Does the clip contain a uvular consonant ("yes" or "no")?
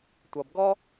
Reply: no